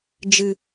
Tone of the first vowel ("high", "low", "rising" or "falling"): low